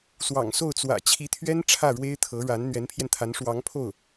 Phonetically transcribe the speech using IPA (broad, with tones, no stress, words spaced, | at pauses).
swɑ̰˨˩ŋso˥˩ʊ̯t͡swä̰˨˩ t͡ɕʰi˧˥t̪ʰɥɛ˥n ʈ͡ʂʰä˥˩ɻwe˥ɪ̯ t̪ʰɤ˧˥ ɻa˧˥n n̪ɥɛ˧˥npʰjɛ˧nt̪ʰa˧˥n ʂwɑ˧˥ŋpʰo˥˩ʊ̯